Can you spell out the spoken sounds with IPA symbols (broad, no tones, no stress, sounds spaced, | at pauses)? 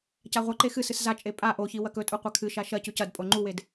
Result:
c a ʁʷ ɐ ǃ e x ɨ s ɨ s z a t͡ʃʼ e pʼ a ʔ o ç i w ɐ k ɵ tʼ u qʷ a kʰ ɨ ʃ a ʃ ɐ c ʉ c ɐ d pʼ o ŋ͡ǃ u w e d